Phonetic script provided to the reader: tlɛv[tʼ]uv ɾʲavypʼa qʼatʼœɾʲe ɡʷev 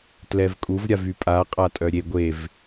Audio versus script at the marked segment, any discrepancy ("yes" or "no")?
yes